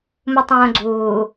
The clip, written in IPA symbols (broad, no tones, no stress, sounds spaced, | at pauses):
m u tˤ õː ɡ͡ǀ uː